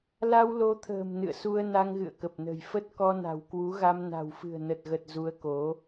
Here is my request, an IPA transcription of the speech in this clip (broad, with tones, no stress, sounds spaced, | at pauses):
l a˧ w l o˨˦ t̪ʰ ə̤ː˨˩ m n ɨ̰˧˨ ə̯ s u˧ ə̯ n a˧ ŋ ɣ ɨ̰˧˨ ə̯ k ə˨˩ p̚ n ə̤˨˩ j f ə˦˥ t̚ k ɔ˧ n a̤˨˩ w k w u˨˦ ɣ a˧ m n a̤˨˩ w f ɨ̤˨˩ ə̯ n ə˨˩ t̚ ɣ ə˨˩ t̚ z u˨˦ ə̯ k o˨˦